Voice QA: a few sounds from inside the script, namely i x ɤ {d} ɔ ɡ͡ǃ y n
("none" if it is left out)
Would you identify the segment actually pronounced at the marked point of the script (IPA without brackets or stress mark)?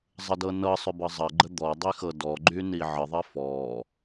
d